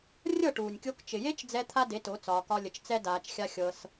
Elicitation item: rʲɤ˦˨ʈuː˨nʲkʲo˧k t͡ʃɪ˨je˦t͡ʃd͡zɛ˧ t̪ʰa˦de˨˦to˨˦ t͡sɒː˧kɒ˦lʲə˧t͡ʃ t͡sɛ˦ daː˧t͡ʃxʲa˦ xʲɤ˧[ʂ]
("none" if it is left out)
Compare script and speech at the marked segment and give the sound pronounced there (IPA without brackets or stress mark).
s